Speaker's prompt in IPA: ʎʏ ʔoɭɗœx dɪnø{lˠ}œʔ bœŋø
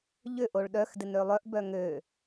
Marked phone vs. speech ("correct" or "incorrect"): correct